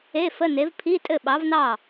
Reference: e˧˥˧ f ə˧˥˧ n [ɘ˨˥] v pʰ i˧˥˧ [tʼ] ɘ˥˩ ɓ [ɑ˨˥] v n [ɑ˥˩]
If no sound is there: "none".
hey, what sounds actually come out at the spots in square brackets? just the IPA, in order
e˨˥, tʼ, ɑ˨˥, ɑ˥˩

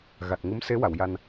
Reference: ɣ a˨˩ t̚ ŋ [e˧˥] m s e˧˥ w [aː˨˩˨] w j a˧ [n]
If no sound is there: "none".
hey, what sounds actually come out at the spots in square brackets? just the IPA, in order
ɨ˧˥, a˨˩˨, n

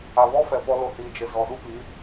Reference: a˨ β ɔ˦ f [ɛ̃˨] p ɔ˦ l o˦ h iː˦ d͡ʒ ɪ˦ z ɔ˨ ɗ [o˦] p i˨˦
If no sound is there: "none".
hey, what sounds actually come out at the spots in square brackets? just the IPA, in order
ɛ˨, u˦

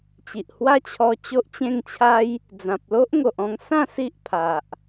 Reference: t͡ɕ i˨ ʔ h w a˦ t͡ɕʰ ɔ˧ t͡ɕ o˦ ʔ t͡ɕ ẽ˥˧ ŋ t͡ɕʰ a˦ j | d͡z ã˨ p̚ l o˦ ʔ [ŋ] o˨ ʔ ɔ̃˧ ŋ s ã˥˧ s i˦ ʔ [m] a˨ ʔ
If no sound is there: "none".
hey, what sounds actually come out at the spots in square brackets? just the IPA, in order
ŋ, pʰ

